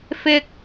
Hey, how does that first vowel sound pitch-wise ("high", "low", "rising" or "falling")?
high